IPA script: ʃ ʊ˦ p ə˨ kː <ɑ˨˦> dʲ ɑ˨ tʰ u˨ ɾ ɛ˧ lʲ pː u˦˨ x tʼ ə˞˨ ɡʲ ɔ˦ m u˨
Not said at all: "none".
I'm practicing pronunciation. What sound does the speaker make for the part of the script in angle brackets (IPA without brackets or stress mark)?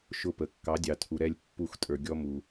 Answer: ɑ˨˦